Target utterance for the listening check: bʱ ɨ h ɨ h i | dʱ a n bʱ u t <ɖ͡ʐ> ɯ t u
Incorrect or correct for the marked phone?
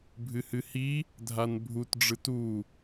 correct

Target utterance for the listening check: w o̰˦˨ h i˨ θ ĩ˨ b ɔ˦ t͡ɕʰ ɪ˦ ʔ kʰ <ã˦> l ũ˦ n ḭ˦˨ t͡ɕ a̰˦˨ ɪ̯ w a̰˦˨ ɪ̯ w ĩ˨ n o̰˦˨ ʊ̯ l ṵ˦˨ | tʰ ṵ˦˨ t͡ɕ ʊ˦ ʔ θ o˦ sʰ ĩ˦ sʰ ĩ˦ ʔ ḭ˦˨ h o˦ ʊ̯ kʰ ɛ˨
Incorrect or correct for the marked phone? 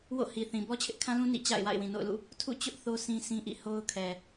correct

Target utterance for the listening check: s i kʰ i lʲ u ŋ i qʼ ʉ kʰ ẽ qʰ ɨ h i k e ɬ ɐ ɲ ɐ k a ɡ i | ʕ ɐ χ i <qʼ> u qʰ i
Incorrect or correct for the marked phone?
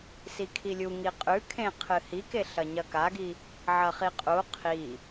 correct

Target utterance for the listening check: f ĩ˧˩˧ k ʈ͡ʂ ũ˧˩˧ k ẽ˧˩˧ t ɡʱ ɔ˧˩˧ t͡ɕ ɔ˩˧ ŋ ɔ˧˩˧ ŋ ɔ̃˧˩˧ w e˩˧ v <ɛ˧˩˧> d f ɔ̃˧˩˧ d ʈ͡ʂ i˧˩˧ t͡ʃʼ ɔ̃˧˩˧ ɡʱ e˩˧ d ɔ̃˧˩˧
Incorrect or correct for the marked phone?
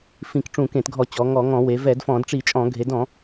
correct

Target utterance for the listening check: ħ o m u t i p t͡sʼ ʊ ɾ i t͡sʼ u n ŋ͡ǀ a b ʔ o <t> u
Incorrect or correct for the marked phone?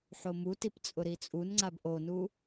incorrect: n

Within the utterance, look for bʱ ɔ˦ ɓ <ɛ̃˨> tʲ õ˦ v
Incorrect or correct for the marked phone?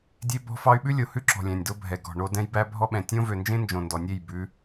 correct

